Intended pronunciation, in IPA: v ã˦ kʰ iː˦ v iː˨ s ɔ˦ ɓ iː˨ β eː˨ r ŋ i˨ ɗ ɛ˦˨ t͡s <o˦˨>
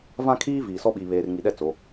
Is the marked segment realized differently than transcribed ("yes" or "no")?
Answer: yes